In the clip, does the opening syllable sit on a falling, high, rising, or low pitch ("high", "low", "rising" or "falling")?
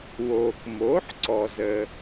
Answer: low